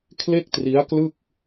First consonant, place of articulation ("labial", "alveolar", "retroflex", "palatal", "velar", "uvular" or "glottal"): velar